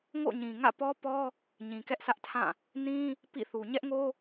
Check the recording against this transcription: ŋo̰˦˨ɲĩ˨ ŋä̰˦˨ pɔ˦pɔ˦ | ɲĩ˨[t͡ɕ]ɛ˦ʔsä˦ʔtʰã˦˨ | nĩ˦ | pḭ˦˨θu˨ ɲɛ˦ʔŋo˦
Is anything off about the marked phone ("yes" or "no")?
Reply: yes